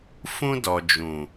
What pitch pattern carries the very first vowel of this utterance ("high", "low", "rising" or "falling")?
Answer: high